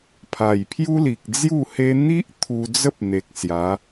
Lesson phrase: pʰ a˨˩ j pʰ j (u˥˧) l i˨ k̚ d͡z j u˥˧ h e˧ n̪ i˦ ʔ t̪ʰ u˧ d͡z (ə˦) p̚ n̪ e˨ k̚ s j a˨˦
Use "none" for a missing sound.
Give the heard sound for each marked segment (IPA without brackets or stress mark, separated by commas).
u˦, ə˦